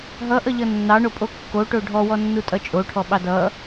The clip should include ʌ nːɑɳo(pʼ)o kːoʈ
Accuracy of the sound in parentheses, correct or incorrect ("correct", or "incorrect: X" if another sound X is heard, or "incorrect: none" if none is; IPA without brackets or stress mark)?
correct